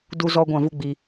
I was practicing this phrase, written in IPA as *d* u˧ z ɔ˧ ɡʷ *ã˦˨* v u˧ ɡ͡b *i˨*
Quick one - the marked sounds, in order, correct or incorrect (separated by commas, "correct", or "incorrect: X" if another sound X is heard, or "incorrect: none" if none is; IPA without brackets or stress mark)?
correct, correct, correct